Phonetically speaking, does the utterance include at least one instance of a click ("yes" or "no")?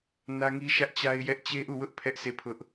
no